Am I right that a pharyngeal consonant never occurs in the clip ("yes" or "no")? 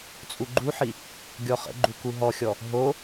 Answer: no